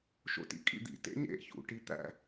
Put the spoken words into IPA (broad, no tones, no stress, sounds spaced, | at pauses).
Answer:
ʃ o̰ t ḭ kʼ ḭ d̪ ḭ t ḛ ɲ ḛ ç ṵ ʈ i t̪ æ̰